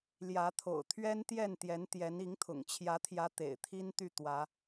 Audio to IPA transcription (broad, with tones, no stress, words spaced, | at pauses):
ljä˨˦t̪ʰo̰˨˩ʊ̯t̪ʰɥɛ˦nt̪jɛ˥˨n t̪jɛ˨˦nt̪jɛ˨˦ni˨˦ŋt̪ʰʊ̰˨˩ŋ t͡ɕʰjä˨˦t̪ʰjä˨˦ t̪ḛ˨˩ɪ̯t̪ʰi˦nt̪y˥˨ t̪wä˨˦